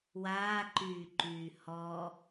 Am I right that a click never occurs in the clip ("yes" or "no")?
no